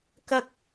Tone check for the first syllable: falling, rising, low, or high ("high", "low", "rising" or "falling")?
high